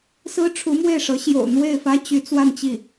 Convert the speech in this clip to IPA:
s ɹ̩˥ ʈ͡ʂʰ u˧˥ m w e˥˩ ɪ̯ ʂ ɤ˧˥ ɕ j o̰˨˩ ʊ̯ n̪ w e˥˩ ɪ̯ f ä˥ t͡ɕ y˧˥ t͡s w a˥˧ n t͡ɕ i˥˩

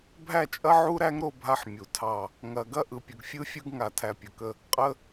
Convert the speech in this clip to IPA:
bʱ æ˦˨ t͡ʃʼ ɐ˦ ʕ u˦ ɾ æ˦ ŋ ɾ o˦˨ bʱ a˦ ħ mʲ u˨ tʰ ɑ˦˨ | ŋ ɐ˨ ɡ ɐ˦ ʔ ɯ˨ pʲ ə˨ ɡ fʲ ɯ˦ fʲ ɯ˦ ɡ ŋ a˨ tʰ æ˨ pʲ ə˨ k ə˦ | qʼ ə˦

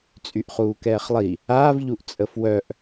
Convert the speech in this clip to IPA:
t͡sʼ y ʔ χ uː k ɛː χ lˠ i | aː v ʎ u ʔ t͡sʼ ə f w œ ʔ

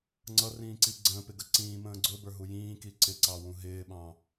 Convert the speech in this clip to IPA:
ŋ͡ǀ ʌ r ĩː ǀ i ɡ͡ǀ ə̃ː p ɪ ɡ ə ǀ ĩː m ə̃ː ɡ͡ǀ ʊ b ə˞ ɦ u j ĩː k i ǀ ɪ ǀ ɑ w ũ ɦ ɪː ɓ ɑ̃

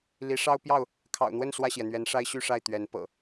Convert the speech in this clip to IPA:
l i˨˦ ʂ ɑ˦ ʊ̯ p j ɑ˥˨ ʊ̯ | kʰ ɑ̰˨˩ ʊ̯ n̪ w ə˥˨ n s w ä˥˨ ɕ j ɛ˩ n̪ ɥ ɛ˨˦ n ʂ a˦ ɪ̯ ɕ y˥˨ ʂ a˥˨ ɪ̯ t̪ ɥ ɛ˨˦ n p ɤ̰˨˩

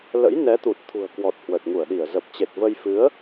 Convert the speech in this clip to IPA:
l ə̰˧˥ j n ɛ˨˦ t̪ u˨˩ t̚ t̪ʰ ṳ˨˩ ə̯ k w ɔ˨˩ t̚ h w ə˨˩ t̚ ŋ u˧˩ ə̯ ɗ i˧˩ ə̯ z ə˨˩ p̚ t͡ɕ e˨˩ t̚ v ə˧ j f ɨ˨˦ ə̯

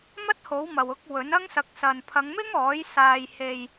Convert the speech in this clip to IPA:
m ɐ˥ t̚ h o˨˥ w m ɐ˨ w ʊ˧ k̚ w ɵ˨˥ n ɐ˥ ŋ s ɐ˧ k̚ s ɐ˨ n pʰ ɐ˨˧ ŋ m ɪ˥ ŋ ɔː˨˥ j s aː˧ j h e˧ j

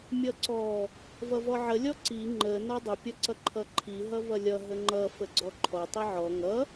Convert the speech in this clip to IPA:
mʲ ʌ ǀ ɔ | v ʌ v ɔ ʕ ə lʲ ɔ ǀ i ŋ͡ǃ ə n ɔ dˤ ə pʲ ʌ ǀ ʌ ǃʰ ʌ ǃʰ i ɦ ʌ v ʌ lʲ ʌ ɦ ə ŋ͡ǃ ʌ f ə ɡ͡ǀ ɔ ǃʰ ɔ tˤ i ʕ ɔ ŋ ʌ

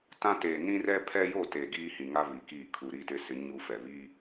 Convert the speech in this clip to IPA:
t ã˦ t eː˨ n ĩ˦ r ɛ˦ pʰ ɛ˦ j o˦˨ t e˨ ɡ iː˦ h ĩ˨ ŋ a˦ β i˨ k iː˦˨ kʰ u˨ ɾ i˦˨ t ɪ˦ s ɪ˨˦ ɲ u˦ f ɛ˨ β i˦

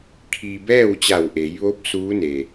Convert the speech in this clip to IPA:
kʰ i˧ b ɛː˥˨ w t͡ɕ a˧˩ w ʔ e˩˧ j ʋ o˧˥ p̚ s uː˧˥ n e˩

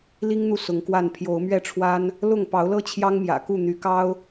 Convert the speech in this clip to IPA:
l i˦ ŋ n̪ u˨ s ʊ˨˦ ŋ k w a˥˨ n pʰ j o˨˦ ʊ̯ m ɥ ɛ˥˨ ʈ͡ʂʰ w a˦ n | l ʊ˥˨ ŋ p ɑ˨˦ ʊ̯ l ɤ˦ t͡ɕʰ j ɑ˦ ŋ m j ä̰˨˩ k u˥˨ n̪ y˨˦ k ɑ˦ ʊ̯

